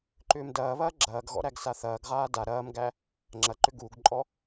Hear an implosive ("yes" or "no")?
no